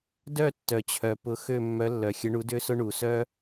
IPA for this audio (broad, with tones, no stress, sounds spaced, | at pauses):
d œ˥˧ tː œ˨ t͡ɕʰ œ˨ p ʊ˧˥ x ø˥˧ mː œ˧˥ lː œ˨ xʲ ə˧˥ ɳ u˧˥ d ø˥ s ʊ˥ ɳ u˨ s œ˥